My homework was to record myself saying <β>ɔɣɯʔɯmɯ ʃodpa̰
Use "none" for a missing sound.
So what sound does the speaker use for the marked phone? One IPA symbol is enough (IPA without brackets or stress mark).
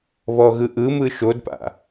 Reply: β